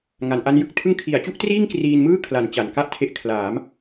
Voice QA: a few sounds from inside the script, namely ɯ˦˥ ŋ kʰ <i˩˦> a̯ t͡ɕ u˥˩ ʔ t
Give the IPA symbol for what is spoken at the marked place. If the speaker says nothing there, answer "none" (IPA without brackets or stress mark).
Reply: i˩˦